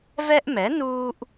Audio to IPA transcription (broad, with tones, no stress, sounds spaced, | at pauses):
v ɛ˦ ʔ m ɛ˩˥ n uː˦ ʔ